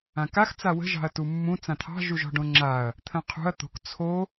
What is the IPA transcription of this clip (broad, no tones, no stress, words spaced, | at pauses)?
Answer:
ãkax t͡sawə̤ ʒɑ̤ɐ̯tumːũ t͡sãt̪ʰɑ̤ ʒuʒɔ̤ɖõŋ͡ǁaɐ̯ | t̪ʰə̃qʰṳɐ̯ t̪o̤k t͡sʰo